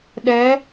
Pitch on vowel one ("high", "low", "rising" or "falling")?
rising